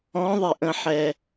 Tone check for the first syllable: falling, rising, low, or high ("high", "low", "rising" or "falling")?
rising